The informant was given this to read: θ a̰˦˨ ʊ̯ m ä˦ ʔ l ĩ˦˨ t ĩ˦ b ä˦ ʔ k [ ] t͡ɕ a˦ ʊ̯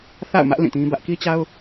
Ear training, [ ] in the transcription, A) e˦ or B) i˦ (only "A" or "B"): B